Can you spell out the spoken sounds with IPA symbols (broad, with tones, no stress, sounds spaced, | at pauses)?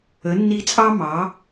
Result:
ə˨˦ nː i˧ t͡sʼ ɑ˦ m ɑ˨˦